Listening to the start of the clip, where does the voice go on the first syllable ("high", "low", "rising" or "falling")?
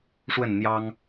falling